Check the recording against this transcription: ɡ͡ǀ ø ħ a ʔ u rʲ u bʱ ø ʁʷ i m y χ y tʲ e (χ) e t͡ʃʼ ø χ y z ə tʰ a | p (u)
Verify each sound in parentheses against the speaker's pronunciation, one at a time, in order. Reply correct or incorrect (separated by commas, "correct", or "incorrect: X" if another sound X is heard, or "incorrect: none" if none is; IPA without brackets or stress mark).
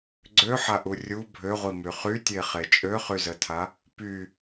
correct, incorrect: y